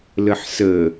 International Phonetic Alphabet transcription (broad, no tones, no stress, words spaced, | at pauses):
ləħsə